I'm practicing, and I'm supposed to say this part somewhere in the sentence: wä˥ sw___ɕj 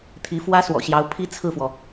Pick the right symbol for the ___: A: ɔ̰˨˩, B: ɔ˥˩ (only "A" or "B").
A